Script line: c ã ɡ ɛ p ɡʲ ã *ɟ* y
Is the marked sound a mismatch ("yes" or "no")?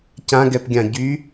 no